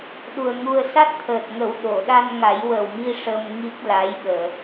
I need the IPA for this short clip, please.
ɗ u˨˩ ə̯ ŋ u˧ ə̯ s a˦˥ t̚ t̪ʰ əː˨˩ t̚ ŋ ə˨˩˦ w ɗ o˨˩˨ ɗ a˧ n ŋ a˨˩˦ j w ə˨˩ w m i˧ ʂ ə˧ m ŋ i˦˥ k̚ l a˧˥ j ɓ əː˨˩˨

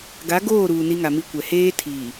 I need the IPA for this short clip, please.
ɡ a˨˦ ɡ oː˦˨ ɾ uː˨ n i˦ ŋ a˨ m i˦ kʷ ɛ˨ h eː˦ tʰ iː˨

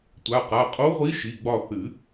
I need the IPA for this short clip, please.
tʷ a˩˧˩ q a˩˧˩ qʼ o˧˥ ʁʷ i˧˥ ʃ i˩˧˩ ɡ͡b ɒ˦˨ θ ɨ˨˩˦

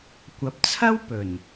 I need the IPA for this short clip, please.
kʷ ɐ˨˥ p̚ t͡sʰ ɐ˥ w p ɵ˨˩ n

